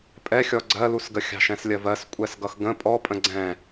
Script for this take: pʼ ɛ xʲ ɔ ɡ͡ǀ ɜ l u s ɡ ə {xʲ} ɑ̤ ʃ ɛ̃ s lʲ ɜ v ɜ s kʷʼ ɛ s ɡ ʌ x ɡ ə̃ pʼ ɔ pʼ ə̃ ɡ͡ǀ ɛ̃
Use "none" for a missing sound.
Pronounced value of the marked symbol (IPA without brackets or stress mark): xʲ